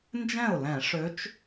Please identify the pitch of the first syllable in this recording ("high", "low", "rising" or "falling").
falling